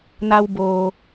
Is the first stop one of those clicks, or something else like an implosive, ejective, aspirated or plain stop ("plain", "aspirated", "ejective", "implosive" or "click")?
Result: plain